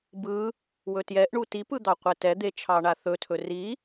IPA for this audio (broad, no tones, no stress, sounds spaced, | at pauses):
b ɯ | w ɵ t j ɛ ʔ ɳ u t i p ɯ d̪ ɑ qʷ ɛ t ɛ d̪ e t͡ʃʰ ɑ ɳ a θ ɵ tʰ ɵ r i